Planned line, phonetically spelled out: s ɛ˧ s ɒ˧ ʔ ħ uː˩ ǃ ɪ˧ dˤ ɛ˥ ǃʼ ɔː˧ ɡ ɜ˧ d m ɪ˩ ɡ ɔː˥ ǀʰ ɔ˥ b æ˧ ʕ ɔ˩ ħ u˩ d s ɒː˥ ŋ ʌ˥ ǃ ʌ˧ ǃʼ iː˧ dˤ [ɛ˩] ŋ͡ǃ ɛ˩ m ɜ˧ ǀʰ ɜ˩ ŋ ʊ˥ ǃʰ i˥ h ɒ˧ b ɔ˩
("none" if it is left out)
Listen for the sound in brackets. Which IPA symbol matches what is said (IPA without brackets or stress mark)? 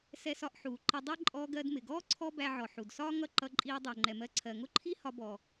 ɛ˩